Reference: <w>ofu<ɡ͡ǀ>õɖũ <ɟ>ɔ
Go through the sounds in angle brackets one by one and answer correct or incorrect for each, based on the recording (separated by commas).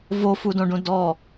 incorrect, incorrect, incorrect